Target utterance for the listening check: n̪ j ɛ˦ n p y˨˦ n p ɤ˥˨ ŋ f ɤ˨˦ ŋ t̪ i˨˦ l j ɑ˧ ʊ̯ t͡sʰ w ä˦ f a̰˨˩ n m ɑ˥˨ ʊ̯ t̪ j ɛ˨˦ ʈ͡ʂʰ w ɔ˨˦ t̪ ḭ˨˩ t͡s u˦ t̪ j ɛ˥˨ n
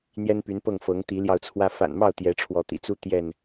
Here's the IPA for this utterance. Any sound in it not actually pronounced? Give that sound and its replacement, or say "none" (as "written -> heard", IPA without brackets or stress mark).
none